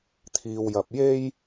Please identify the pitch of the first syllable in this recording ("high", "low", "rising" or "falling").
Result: low